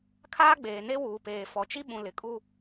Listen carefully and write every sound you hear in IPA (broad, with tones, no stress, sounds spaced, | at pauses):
kʰ aː˦ ɡ͡b eː˨ n e˦ w uː˨ p eː˨ f ɔ˨ t͡ʃ i˦ ɓ ũ˨ l ɪ˨ kʼ u˦